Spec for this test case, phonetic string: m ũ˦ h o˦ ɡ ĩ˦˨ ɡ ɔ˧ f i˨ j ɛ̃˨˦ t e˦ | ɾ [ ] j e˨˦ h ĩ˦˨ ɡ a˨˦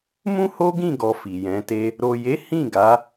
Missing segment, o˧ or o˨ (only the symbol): o˨